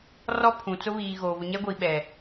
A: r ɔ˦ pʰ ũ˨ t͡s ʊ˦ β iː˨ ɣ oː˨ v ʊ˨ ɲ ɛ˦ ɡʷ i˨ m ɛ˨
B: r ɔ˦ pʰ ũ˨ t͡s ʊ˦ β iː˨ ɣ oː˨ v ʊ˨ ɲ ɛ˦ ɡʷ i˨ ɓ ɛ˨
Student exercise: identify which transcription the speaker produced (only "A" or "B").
B